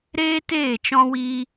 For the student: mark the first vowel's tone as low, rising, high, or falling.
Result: high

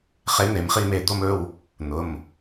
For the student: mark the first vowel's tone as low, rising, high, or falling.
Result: rising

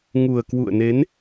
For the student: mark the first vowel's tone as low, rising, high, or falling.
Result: low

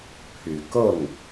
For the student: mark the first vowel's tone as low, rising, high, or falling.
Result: low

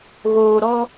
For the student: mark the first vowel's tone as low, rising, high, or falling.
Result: low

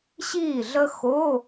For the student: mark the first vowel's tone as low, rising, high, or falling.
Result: falling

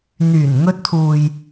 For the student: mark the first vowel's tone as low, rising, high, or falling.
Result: low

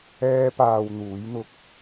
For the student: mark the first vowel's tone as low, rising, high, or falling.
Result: high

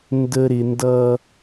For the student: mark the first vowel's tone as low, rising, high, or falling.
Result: low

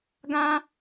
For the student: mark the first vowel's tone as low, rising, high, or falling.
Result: high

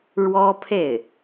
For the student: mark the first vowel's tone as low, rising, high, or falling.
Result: high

